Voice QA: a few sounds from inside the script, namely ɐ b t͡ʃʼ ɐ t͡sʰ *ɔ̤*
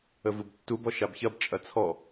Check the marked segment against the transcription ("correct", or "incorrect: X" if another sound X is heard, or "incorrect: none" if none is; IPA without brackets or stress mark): incorrect: ɔ